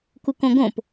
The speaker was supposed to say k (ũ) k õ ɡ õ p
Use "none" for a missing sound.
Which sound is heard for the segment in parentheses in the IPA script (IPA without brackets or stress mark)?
u